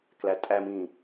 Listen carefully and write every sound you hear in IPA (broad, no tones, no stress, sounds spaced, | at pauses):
k l æ tʼ æ m ĩː